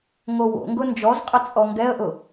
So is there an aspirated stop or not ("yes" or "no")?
no